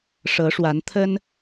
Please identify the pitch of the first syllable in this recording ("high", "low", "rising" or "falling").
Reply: rising